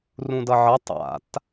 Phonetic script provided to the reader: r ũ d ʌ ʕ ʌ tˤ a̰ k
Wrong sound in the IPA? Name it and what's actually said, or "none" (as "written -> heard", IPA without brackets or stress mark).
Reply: k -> t